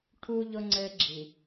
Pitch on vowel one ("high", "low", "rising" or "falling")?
high